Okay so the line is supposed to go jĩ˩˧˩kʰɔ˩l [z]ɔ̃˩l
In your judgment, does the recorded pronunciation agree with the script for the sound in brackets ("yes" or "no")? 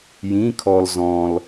yes